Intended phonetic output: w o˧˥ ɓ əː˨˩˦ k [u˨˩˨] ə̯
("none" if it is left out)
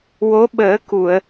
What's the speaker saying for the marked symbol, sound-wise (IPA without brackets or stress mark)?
u˨˩˨